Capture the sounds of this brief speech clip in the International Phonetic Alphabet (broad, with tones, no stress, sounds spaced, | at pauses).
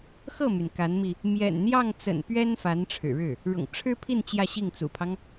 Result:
x ɤ˥˩ m y˩ n k a˧˥ n m i˧ | m j ɛ̰˨˩ n n̪ j ɑ˥˩ ŋ t͡s ə̰˨˩ n p ɥ ɛ˥ n f a˧˥ n ʈ͡ʂʰ ɻ̩˨˩ ɻ ɻ̩˥˩ | ɻ ʊ̰˨˩ ŋ ʈ͡ʂʰ ɻ̩˥ pʰ i˥˧ n t͡ɕ j ä˥˧ ɕ i˥˩ ŋ t͡s ṵ˨˩ pʰ ɑ˦ ŋ